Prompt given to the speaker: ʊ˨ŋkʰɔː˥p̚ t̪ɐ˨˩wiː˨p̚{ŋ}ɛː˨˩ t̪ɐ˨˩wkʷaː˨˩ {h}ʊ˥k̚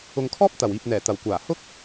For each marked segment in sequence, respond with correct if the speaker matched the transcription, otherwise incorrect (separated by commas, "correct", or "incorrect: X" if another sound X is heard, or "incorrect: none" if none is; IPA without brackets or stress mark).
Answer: incorrect: n̪, correct